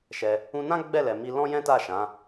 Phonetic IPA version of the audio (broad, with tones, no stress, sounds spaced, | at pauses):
ʃ ɛ˧ | ũ˧ n ã˦ ɡ͡b ɛ˦˨ l ɛ˨ m i˧ l ɔ̃˦ j ɛ̃˦ t a˦˨ ʃ ã˨˦